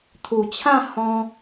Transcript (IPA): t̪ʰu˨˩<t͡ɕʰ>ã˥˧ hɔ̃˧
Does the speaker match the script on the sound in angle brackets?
yes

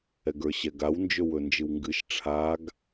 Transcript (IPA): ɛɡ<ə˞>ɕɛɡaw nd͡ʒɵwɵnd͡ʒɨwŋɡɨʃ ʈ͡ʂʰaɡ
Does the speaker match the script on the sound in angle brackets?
yes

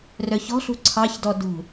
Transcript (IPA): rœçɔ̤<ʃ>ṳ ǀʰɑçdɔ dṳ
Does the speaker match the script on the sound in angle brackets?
no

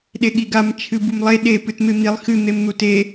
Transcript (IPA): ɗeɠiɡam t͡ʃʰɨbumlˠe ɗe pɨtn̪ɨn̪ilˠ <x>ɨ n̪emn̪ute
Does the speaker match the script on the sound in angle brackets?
yes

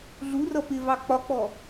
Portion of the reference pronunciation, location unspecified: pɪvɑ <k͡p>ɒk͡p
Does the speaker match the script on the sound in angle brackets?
yes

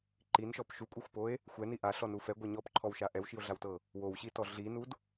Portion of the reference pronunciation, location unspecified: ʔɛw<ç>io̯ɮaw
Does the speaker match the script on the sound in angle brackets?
no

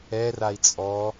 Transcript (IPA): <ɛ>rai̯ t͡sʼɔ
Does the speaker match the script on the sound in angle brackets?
yes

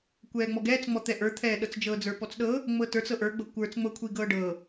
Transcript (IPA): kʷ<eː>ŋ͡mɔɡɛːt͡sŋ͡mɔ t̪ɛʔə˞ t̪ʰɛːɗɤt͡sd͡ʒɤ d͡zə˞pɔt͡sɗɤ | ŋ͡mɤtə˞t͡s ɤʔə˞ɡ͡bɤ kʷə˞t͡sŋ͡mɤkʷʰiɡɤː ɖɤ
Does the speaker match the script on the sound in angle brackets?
no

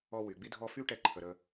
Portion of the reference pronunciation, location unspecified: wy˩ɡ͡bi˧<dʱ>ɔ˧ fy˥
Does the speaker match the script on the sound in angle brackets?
yes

